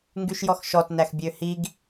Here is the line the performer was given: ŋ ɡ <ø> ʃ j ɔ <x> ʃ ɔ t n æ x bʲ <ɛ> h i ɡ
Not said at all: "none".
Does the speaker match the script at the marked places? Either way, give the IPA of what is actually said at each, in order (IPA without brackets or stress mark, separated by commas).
y, x, ø